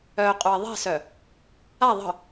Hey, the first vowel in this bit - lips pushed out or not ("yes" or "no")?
yes